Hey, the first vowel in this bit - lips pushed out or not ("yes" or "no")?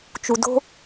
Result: yes